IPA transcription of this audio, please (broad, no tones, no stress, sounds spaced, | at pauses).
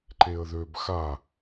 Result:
ǃ e ə̯ ð ø b x a